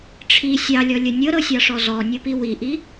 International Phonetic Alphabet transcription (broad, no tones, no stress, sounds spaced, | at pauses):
ʈ͡ʂʰ i sʲ ɑ lʲ ɔ lʲ ə nʲ ɤ ɾ ɤ sʲ ɑ ʂ ɔ z ɔ nʲ ɤ p i w i ʔ i